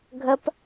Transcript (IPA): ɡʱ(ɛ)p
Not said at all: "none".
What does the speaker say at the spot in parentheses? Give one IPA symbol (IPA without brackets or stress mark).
ə